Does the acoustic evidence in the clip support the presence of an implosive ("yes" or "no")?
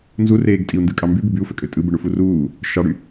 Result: no